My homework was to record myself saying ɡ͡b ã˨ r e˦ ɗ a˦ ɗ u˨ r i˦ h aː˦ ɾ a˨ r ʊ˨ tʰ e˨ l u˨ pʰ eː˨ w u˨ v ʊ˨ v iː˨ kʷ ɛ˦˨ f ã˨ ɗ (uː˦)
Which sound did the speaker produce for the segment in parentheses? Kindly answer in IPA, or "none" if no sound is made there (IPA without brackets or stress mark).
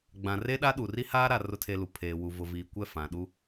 u˦